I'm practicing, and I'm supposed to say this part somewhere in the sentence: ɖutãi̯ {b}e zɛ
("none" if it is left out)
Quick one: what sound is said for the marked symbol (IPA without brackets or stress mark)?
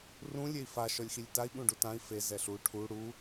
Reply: f